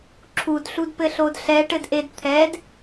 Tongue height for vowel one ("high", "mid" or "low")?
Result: high